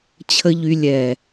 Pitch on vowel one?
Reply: high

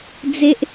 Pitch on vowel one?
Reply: high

